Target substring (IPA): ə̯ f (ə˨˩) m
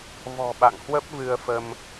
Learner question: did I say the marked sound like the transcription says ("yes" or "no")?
no